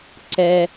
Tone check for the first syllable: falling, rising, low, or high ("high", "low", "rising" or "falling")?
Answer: low